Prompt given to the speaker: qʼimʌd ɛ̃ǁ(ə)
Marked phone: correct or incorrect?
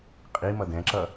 incorrect